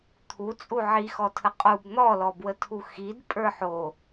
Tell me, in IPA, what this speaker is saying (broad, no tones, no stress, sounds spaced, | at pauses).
t̪ʰ u t͡sʼ u ʕ i x ɔ tʰ ə qʼ u b n̪ ɔ l ɔ b w ə tʰ u x i d pʼ ə˞ ħ o